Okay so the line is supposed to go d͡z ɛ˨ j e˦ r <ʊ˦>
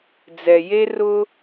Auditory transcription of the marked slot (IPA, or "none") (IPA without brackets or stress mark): ʊ˦